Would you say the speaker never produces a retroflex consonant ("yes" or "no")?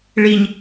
no